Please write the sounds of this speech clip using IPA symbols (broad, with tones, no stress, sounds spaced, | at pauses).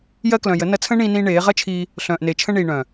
j ɜ˧ k l œ̃˨ j ə˨˦ n ɐ˧ t͡sʰ ə̃ː˦ ɳ ĩː˧ n ĩː˧ ɳ eː˨˦ ʁ ɐ˦ t͡ʃʰ iː˧ | ɬ œ̃ː˨ ʔ n e˨ t͡ʃʰ ə̃˧ ɳ iː˨ ɳ œ̃˨